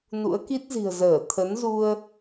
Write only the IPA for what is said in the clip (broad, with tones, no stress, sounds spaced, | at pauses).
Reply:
n ṵ˧˥ ə̯ k i˦˥ t̚ z i̤˨˩ ə̯ z əː˧˩ t̪ʰ ə˨˦ n z u˧ ə̯